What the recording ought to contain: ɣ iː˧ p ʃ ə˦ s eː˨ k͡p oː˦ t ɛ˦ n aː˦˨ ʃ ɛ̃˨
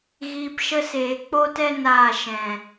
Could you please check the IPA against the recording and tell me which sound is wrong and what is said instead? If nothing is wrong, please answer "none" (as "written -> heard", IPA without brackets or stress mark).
none